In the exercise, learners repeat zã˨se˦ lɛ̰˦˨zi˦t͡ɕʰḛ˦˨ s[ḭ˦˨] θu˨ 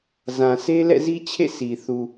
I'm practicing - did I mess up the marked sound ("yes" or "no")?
yes